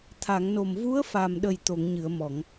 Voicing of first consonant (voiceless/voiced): voiceless